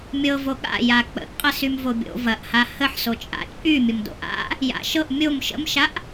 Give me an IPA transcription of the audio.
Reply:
mʲɤvo ɠa̰ja k͡pə̰ʔqʼə symvobʲo̰ vɐʔha həħso t͡ʃʼa̰t͡ʃʼy mʲəmdo̰ʔa̰ | ja̰ʃɤʔ mʲom ʃə̰mʃaʔ

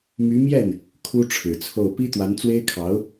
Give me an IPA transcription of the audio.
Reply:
my˧˥mjɛ˥˩n | kʰu˥ʈ͡ʂʰɻ̩˨˩t͡sʰo˥˩ʊ̯ pi˥t̪wa˧˥n t͡swe˥ɪ̯kʰɑ˧˥ʊ̯

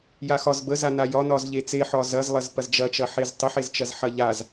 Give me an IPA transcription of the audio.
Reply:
jaxɒz bəzana jɒnɒz ʎet͡seħɒ zɐzlˠɐz pɐzd͡ʒɐt͡ʃɐ ħeztˤəħezt͡ʃɐz ħɐʎaz

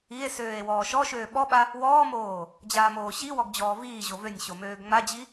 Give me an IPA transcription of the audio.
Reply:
ie̯søːe̯ wɔːʃɔʃøː ɓɔɓa | wɔːmoː | d͡ʑaːmoːɕiwɔɡ d͡ʑɔːviːʑo vønʲɕo møːɡŋ͡mad͡ʑi

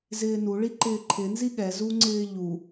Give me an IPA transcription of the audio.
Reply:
zɪːnuɭi ǃɪːǃʰɪnzi ɠɛzuŋ͡ǀɪː ʎu

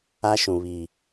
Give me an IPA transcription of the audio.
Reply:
a˦ʃũ˨βi˨

